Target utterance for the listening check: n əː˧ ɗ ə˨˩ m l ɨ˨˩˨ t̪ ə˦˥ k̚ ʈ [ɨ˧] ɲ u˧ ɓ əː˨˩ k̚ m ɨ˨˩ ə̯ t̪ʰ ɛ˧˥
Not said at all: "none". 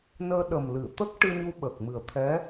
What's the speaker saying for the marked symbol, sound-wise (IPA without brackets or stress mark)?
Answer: ɨ˧